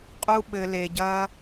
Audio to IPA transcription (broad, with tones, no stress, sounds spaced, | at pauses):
qʼ u˧ ɓ ɘ˧ l e˧ ɟ ɐː˦